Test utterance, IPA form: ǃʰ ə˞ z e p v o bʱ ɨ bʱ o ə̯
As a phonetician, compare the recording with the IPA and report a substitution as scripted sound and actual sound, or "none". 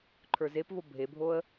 ɨ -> e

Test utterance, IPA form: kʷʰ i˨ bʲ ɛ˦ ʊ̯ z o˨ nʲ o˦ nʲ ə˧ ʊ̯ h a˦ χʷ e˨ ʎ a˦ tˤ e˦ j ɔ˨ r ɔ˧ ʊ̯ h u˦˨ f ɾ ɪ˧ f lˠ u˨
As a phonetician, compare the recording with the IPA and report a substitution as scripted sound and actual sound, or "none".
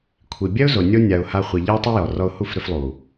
ə˧ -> a˧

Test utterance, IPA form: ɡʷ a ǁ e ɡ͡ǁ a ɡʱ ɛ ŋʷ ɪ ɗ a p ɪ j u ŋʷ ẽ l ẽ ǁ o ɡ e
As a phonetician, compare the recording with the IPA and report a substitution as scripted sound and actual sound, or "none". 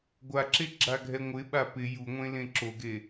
ɗ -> ɓ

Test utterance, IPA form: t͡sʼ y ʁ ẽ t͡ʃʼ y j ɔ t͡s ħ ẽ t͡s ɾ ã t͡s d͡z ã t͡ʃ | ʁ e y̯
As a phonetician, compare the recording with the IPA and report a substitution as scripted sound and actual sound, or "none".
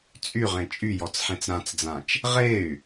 none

